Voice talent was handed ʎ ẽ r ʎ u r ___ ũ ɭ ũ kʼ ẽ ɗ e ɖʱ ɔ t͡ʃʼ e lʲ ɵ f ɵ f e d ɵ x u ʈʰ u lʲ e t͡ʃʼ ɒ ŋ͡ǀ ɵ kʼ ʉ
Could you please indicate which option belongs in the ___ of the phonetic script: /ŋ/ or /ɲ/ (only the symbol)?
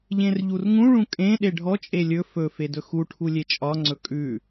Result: ŋ